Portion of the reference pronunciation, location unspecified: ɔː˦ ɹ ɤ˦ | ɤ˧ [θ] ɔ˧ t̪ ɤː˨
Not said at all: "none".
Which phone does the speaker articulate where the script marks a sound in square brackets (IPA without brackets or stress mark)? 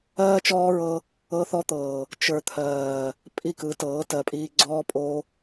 θ